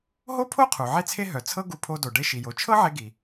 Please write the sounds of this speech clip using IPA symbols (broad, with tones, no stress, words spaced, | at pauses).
ɦo˥pʰo˥qʰu˩ ʕe˥t͡sʰe˥ ɦœ˩t͡sʰɤ˥ɡu˧ pʰo˧do˩ ɖe˧ʃi˩jo˩ t͡ʃʰɤ˥ʕe˧ɡi˩